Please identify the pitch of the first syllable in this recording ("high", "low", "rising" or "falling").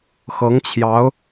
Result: rising